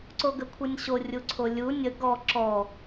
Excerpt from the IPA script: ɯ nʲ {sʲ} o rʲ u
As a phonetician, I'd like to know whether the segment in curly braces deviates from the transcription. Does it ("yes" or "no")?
yes